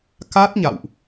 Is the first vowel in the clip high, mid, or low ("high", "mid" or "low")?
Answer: low